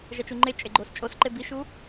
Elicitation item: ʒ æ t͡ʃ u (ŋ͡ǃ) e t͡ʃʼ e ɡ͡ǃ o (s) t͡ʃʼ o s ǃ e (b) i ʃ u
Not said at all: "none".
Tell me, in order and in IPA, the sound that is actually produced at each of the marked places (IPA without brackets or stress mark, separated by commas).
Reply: ŋ͡ǃ, s, b